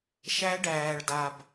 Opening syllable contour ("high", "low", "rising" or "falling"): rising